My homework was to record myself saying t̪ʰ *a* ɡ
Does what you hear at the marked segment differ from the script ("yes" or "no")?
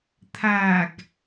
no